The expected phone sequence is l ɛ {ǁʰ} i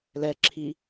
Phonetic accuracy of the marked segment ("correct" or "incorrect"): correct